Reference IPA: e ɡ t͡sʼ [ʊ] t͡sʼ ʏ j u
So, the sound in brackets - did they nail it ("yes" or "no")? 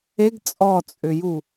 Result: no